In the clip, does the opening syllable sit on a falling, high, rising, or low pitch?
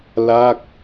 falling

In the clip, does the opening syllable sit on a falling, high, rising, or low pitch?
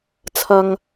low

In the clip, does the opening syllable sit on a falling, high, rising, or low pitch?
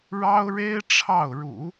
high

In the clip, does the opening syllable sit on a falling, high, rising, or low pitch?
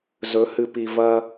rising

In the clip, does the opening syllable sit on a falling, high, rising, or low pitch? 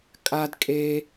high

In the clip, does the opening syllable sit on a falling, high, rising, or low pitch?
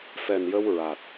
low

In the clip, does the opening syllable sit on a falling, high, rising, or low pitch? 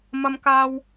high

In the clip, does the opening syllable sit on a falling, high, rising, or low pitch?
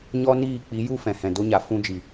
high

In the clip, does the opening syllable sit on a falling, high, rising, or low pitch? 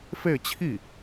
falling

